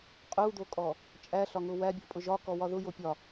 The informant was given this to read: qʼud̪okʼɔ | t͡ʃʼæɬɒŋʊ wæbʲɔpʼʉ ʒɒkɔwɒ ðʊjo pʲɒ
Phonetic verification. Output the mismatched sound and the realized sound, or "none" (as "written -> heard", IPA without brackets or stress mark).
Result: ʉ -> ʊ